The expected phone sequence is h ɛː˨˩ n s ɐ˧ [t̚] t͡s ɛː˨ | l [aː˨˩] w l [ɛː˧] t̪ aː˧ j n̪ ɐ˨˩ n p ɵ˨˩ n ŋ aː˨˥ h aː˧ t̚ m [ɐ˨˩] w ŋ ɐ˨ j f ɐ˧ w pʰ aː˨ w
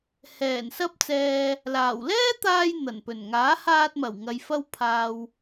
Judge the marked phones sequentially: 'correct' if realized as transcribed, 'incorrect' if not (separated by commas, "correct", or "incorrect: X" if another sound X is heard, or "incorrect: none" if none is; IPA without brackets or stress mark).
incorrect: p̚, correct, incorrect: ɛː˥, correct